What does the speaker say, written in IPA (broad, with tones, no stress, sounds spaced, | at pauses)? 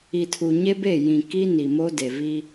i˨ tʰ u˨ ɲ e˦ b e˦˨ j ĩ˨ k i˦ n i˨ m o˦ d e˨ v i˦